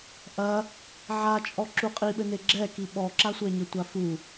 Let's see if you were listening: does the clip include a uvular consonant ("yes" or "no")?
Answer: yes